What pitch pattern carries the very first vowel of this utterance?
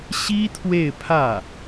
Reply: high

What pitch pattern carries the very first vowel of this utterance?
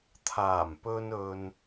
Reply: low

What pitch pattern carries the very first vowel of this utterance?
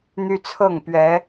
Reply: high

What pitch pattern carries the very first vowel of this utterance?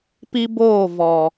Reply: high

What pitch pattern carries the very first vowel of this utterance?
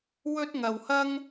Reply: high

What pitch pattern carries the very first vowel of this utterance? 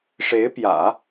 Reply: rising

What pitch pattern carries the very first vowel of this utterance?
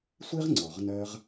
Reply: high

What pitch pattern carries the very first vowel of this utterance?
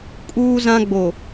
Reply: high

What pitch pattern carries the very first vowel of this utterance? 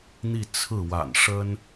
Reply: falling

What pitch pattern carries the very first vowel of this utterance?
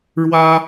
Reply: high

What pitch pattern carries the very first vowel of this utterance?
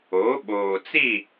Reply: rising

